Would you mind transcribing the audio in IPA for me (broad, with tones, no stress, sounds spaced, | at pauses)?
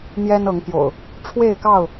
n̪ j ɛ˦ n ɤ˨˦ ŋ p j o̰˨˩ ʊ̯ | ʈ͡ʂʰ w e˥˨ ɪ̯ k ɑ˥˨ ʊ̯